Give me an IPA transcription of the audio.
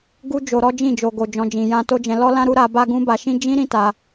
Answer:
ɡ u˦ d͡ʒ o˧ ɾ ɔ˦ d͡ʒ ĩ˦˨ d͡ʒ o˨ ɡ o˨ d͡ʒ ɔ̃˨ d͡ʒ ĩ˨ j ã˧ t o˦ d͡ʒ ɛ̃˧ l ɔ˦ l ã˦ ɾ u˦ ɾ a˧ b a˦ ɡ ũ˦ b a˧ ʃ ĩ˦ d͡ʒ ĩ˦ ɾ ĩ˦ t a˧

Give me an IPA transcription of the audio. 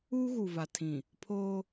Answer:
uː˦ ɣ u˨ v a˨ tʰ ĩ˨ | pʰ oː˦

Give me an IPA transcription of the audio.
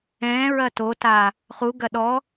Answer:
ɛ̃ː ɹ ɐ t o t aː | χ u ɡ ɐ ɗ ɔ

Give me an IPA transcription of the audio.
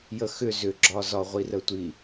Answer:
j ə x ʏ z ʏ ɡ͡ǁ ɒ z ɒ ʁʷ i r ə tʷ i

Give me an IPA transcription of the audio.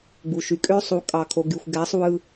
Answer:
ɡ͡b u˨ ʃ y˨ kʼ ø˦ sˤ u˨˦ kʼ ɑ˨ kʰ o˨ ɡ y˨ xʷ ɡ æ˨˦ sˤ w ɯ˦

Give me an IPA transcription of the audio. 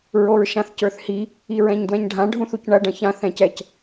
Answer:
ɹ o ɹ ʃ ã θ c ə˞ θ h i | i ɹ ɛ̃ ɲ d w ɛ̃ ɲ ɖʱ ã ɖʱ ũ θ u c ɳ ɐ ɖ ɐ̃ ç ã θ ɛ̃ c ɛ c

